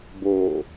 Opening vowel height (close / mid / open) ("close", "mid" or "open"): mid